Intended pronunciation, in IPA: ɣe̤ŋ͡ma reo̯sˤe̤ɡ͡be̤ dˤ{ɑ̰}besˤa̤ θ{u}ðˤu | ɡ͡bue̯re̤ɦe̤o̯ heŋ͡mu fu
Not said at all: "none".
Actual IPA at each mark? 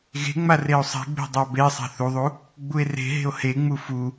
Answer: ɑ, u

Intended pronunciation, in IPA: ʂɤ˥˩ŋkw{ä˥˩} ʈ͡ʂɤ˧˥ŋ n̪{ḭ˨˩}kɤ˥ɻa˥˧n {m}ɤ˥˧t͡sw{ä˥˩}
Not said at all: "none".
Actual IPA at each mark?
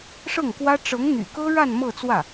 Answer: ä˥, y̰˨˩, m, ä˥˩

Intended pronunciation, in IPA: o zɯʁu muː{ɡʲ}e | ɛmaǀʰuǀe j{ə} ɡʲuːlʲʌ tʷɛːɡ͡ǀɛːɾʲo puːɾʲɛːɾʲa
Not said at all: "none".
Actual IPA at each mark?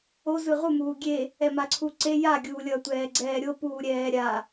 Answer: ɡʲ, a

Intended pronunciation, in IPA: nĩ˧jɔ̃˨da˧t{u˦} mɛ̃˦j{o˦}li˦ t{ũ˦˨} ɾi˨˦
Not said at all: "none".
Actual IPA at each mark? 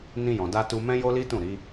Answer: u˧, o˦, ũ˦˨

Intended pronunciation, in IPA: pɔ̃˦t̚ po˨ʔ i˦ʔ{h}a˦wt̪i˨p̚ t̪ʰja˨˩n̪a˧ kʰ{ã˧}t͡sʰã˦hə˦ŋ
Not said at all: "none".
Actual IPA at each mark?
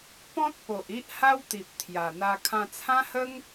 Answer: h, ã˧

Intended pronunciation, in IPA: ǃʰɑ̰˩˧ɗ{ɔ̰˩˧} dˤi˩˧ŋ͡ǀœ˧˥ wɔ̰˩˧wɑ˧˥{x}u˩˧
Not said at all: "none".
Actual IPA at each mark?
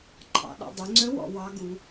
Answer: ɔ̰˩˧, ɡ

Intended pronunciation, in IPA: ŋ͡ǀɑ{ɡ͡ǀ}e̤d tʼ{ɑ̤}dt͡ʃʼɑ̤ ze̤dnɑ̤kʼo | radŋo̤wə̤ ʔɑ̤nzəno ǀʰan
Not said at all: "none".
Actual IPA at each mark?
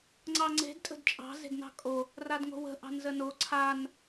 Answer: ŋ͡ǀ, ə̤

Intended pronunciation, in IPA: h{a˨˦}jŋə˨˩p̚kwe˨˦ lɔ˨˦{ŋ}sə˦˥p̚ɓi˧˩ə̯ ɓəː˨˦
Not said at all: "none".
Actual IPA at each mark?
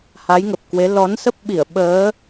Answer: a˨˦, n

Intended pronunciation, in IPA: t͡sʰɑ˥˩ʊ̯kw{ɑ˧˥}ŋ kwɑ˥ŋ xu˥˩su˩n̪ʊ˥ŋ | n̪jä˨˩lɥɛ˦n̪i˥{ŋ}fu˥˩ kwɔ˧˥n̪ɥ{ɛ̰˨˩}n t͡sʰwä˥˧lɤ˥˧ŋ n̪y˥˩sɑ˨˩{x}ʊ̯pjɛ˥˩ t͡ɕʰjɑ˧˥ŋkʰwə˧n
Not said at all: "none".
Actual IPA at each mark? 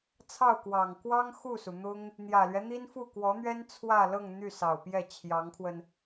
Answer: ɑ˨˩, n, ɛ˥, none

